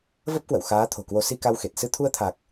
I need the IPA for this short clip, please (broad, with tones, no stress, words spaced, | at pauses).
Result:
və˦˥p̚kwə̰˧˨w xaː˨˦ t̪ʰo̤˨˩kwo˨˦ si˧ka˧wxe˨˩t̚ sɨ˧t̪ʰu˧ə̯t̪ʰa˨˩k̚